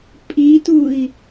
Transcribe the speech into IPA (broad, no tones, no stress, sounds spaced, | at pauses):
pʼ i t u i̯